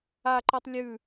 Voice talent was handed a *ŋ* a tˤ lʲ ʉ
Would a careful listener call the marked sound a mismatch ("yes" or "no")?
yes